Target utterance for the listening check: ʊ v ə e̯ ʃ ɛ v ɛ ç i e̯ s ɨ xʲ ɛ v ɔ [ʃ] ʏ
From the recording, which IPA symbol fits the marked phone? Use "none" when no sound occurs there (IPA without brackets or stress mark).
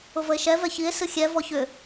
ç